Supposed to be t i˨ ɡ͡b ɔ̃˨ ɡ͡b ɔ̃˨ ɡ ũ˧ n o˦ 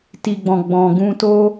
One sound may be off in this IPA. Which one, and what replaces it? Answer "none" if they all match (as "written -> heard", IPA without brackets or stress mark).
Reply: n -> t